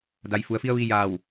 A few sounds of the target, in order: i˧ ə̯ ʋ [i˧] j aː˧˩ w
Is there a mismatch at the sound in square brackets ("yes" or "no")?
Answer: no